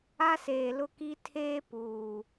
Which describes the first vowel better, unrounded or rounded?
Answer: unrounded